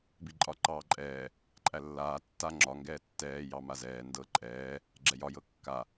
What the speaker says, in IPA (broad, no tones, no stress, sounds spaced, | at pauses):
b i ǃʼ ɒ ǃ ɑː ǃʼ ɛː | ǃʼ æ lː aː tː a ŋ͡ǁ ɒ ŋ ɡ ɛː tː ɛː j ɑ m a z ɛː n d ɤ ǃʼ ɛː | ɡ͡ǁ ɛ j ɒ j ɤ kː a